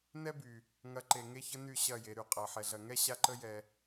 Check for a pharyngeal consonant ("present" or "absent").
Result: present